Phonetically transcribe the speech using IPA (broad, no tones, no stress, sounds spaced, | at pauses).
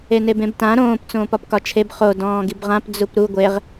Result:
e n e b ẽ b t ã ɾ õː p t͡s õː p ɒ p k ɒ t͡ʃʰ e b χ o d ɔ̃ː ɡ i b ʁ ã p d͡z u p ɾ u ɡʷ e ʁ